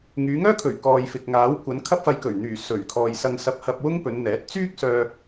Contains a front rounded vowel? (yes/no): yes